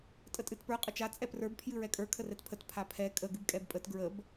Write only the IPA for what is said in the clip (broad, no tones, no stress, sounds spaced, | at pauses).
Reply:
tʼ ə tʼ ɨ t p ə˞ qʼ ə t͡ʃ a t͡sʼ ɛ p r ə˞ b pʰ j ɨ ɹ ɛ kʼ ə˞ kʰ ə r ɛ t pʰ ə t pʰ a pʰ ɛ kʼ ə ɡ ɨ b kʼ ɛ b pʼ ə t ɡ ɹ ə b